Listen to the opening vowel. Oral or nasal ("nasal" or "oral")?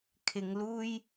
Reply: oral